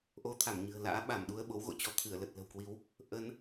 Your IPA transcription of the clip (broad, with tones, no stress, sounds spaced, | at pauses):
ʔ o˧ t̪ʰ a˧˩ m ɲ ɨ̤˨˩ ə̯ l a̰ː˧˥ ɓ a˧˩ m ɗ u˧ ə̯ ɓ o˨˦ w ɣ o̰˧˨ t͡ɕ ɔ˧ t̪ʰ ɨ˧˩ ə̯ l ə˨˩ t̚ l ə̤˨˩ w k w i˨˦ w | ʔ ə˨˦ n